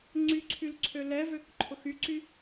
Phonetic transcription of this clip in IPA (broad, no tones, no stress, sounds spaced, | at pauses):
ŋ͡ǀ y ǀʰ y l ǀʰ ø l ɛ v ø k ǃʰ ʊ x y ǀ y